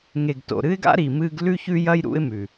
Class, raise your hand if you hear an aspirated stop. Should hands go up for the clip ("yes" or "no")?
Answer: no